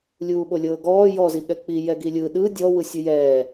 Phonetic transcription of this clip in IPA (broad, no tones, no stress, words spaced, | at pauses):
lʲuːɓolʲɤːɡɔː jɔ ziɠɛk͡pi jɛɡilʲɯ ɗɯ dʲɔ wɯsʲɯjɛː